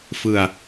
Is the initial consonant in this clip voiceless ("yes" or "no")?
yes